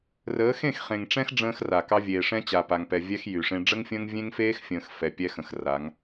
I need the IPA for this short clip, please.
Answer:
rəː˨˦xẽ˦˨x χẽ˨ŋʈ͡ʂɛ̃˦x ɖ͡ʐə̃ː˦xra˨kɑ˦ vʲeː˨ʂɛ̃˦t͡ɕa˨ pa˨ŋpɛ˨ vʲɛ˦x jy˨ʂẽ˦ ɖ͡ʐə˦ŋfʲə̃ː˦ŋ vʲẽ˦ŋfeː˦xfʲə̃ː˨x fɛ˨pʲɛ˦xə̃˨x ra˨˦ŋ

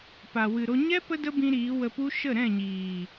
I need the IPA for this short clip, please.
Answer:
pa˨ wɨ˨ɾo˧ ɲɛ˦ pə˦də˦bĩ˧ ɾiː˨˦wə˧pu˦ ʃə˦˨ɾɛ̃˦˨ɲiː˨

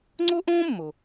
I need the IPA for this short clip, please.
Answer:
ŋ͡ǀo˥ʔõː˥mːo˩

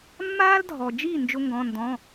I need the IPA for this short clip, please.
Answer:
mːaː˥ldʱɔ˨d͡ʒi˥˨ nd͡ʒʊ˥ŋɡɔ̃˧˥˧ndɔ̃˧˥˧

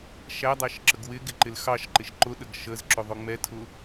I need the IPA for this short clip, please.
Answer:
ʃædˤæʃ ǁəɡwɪɡɪ ǃɪlxɑʃǃɪʃ ǃʊɗəɡ ʃəzǁʊ ðˤʊŋ͡mɛtʰʊ

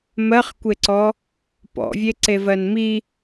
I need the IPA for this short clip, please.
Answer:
mɜχkʷeǀɔ | pɔ̰vʲe ǀevɜnmi

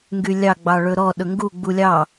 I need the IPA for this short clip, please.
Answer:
ŋɡylʲɑ ɡ͡bɑɭɵɾɔ ɗɵŋɡu ɡ͡bulʲɑ

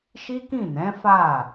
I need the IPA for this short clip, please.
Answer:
ʃi˦kĩ˦˨nɛ̃˨˦ fa˦˨

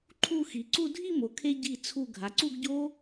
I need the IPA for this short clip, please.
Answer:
ǃʰu˥˧ xi˩˧ǀu˥˧ dʱi˥˧mo˩˧kʰe˧ ɟi˧˩t͡sʰu˧˩ ɡʱa˩˧ǀu˥˧ɡɟo˥

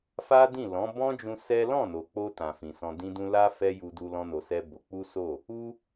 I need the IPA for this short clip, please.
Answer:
fa˦dĩ˦˨lɔ̃˨˦ bɔ̃˦d͡ʒũ˧ sɛ˦ lɔ̃˦˨no˨ k͡po˧ tã˨fĩ˨ sɔ̃˧dĩ˦dũ˦ la˦ fɛ˦ju˧du˧ lɔ̃˦no˧sɛ˦bo˧ k͡pu˦so˦˨ | u˦

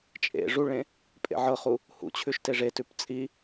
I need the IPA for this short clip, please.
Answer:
t͡ʃʼḛ ʐuɭẽ | pʼḛʕɤχu | hṵt͡ɕʰʉʃ teʐetʉp t͡sʼi

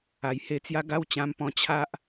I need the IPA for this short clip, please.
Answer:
a˨˩jhe˧t͡sja˦ ɡa˦wt͡ɕã˧mpɔ̃˧ t͡ɕʰa˦ʔ

